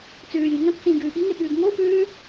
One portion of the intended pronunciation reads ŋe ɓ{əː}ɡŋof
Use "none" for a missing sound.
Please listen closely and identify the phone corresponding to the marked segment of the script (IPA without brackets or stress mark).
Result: ʉː